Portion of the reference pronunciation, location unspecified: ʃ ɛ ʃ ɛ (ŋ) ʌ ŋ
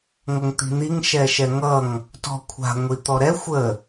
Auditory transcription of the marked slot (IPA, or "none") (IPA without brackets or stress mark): ŋ